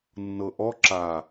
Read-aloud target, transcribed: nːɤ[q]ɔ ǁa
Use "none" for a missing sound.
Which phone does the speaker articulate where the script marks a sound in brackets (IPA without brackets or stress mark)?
ʔ